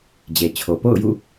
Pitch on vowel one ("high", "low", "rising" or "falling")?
low